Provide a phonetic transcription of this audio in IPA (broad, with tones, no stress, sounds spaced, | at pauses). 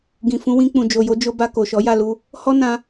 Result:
ɡ ĩ˨ f ũ˨˦ w ĩ˧ k͡p ũ˨ d͡ʒ o˨ j o˧ d͡ʒ o˧ b a˧ k o˨ ʃ ɔ˨˦ j a˦˨ l u˧ | h ɔ˦ n ã˧